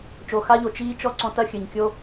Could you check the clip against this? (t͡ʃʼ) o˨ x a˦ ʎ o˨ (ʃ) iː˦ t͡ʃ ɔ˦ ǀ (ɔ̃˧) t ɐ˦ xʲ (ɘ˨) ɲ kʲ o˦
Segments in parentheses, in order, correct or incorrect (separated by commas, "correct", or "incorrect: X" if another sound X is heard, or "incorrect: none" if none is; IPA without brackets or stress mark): incorrect: t͡ʃ, incorrect: t͡ʃ, correct, correct